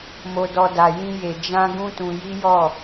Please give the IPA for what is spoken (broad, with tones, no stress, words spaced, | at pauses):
mo˧dɔ˧ da˧jĩ˦je˧ d͡ʒã˦ ɡũ˦tũ˧ji˦ jɔ˦˨